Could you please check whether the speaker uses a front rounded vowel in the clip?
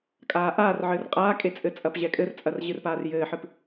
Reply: no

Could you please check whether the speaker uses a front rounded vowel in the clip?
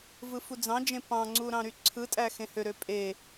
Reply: yes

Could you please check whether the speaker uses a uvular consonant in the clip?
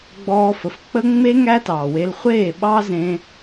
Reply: yes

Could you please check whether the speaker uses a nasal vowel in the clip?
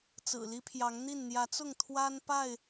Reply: no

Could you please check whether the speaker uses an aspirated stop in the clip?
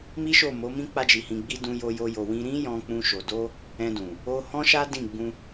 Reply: no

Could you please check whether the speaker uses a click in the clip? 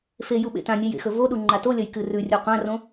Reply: yes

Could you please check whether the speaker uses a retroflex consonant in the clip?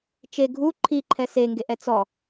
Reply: no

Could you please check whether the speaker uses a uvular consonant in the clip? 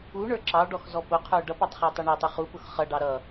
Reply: yes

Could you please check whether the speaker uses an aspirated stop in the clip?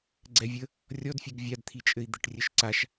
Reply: yes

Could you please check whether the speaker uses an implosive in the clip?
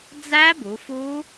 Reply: no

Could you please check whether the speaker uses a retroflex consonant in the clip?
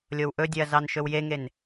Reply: no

